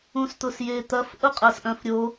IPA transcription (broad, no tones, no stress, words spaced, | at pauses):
ũst̪ʊsjet̪ɐf ʔʊqʼɐsʔœ̃fɾʲo